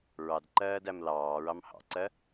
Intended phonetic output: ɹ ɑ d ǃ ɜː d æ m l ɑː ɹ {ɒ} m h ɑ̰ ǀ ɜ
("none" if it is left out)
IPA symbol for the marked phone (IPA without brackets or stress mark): ɑ